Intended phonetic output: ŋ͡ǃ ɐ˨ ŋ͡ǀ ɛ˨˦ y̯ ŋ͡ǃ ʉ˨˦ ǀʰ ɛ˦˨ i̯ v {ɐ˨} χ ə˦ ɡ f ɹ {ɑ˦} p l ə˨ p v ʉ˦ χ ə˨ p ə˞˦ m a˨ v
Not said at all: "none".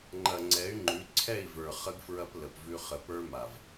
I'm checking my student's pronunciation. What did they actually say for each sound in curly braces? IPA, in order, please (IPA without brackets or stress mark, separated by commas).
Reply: ə˞˨, ɐ˦